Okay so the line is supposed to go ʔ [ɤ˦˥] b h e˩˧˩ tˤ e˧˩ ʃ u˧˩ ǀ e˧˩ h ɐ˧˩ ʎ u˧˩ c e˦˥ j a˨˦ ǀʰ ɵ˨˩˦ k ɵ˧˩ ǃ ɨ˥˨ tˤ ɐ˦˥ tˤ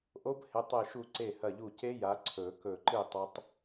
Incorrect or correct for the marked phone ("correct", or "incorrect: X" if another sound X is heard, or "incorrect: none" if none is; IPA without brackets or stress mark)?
incorrect: o˦˥